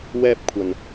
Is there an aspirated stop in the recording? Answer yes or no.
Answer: yes